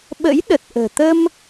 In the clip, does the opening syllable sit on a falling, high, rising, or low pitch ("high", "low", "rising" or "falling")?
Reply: rising